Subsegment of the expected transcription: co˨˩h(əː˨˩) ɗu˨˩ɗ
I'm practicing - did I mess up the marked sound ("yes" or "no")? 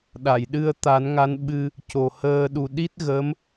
yes